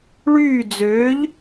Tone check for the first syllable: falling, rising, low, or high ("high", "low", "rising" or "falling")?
falling